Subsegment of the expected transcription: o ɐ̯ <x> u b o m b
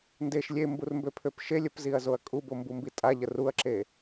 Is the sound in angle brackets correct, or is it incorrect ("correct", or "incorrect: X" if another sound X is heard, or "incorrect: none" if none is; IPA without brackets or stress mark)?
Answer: incorrect: kʼ